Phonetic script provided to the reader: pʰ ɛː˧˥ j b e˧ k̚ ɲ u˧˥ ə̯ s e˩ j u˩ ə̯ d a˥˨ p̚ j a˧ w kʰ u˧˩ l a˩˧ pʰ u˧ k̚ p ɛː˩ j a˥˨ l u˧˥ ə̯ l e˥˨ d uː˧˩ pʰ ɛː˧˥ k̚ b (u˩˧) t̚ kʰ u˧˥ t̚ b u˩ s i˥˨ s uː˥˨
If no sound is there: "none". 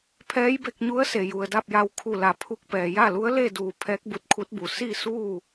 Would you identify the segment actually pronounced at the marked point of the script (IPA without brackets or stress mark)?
u˧˥